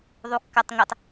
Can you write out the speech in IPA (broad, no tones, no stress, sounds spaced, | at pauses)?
ðˤ u kː a tˤ ŋ ɛ tˤ